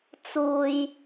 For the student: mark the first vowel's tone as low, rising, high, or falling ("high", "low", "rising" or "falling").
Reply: low